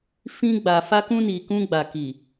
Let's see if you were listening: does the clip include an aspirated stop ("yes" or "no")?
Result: no